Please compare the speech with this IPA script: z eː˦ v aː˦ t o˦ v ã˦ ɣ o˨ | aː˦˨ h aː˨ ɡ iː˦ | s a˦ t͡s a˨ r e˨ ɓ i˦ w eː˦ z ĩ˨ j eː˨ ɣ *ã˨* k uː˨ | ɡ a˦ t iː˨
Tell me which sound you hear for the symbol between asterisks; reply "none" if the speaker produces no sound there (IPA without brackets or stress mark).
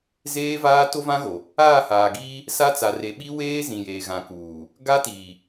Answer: ã˨